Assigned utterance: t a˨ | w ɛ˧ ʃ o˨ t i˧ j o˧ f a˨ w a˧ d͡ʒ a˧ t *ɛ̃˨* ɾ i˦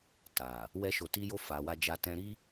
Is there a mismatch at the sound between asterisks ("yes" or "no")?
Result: yes